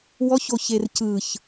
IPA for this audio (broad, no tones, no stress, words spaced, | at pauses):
wɔço çercɯç